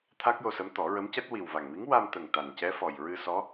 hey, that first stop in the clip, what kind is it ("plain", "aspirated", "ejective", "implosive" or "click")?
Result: aspirated